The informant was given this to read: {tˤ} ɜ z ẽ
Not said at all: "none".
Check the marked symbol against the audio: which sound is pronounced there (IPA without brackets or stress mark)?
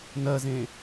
n